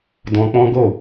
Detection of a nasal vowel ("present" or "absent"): present